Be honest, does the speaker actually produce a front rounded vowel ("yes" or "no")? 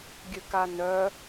yes